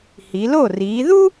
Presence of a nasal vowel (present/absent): absent